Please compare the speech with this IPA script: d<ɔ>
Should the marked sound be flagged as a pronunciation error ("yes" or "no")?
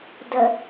yes